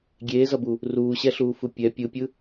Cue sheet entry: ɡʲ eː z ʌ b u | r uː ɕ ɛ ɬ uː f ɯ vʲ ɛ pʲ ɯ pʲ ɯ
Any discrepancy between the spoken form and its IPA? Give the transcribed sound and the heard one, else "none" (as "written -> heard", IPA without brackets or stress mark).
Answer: vʲ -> pʲ